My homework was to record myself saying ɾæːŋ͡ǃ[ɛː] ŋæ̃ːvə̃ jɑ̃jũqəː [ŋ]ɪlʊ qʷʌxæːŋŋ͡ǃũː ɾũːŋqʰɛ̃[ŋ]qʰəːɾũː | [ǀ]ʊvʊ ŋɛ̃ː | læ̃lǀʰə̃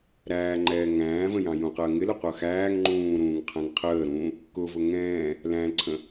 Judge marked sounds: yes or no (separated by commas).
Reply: yes, yes, yes, no